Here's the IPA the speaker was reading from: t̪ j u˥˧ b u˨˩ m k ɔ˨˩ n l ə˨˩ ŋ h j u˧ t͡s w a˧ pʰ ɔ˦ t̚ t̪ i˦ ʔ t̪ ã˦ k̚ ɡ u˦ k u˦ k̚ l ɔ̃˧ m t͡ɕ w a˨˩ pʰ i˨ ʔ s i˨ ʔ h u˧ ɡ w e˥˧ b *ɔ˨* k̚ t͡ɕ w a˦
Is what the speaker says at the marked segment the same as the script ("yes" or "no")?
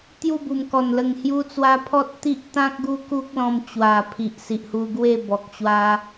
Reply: yes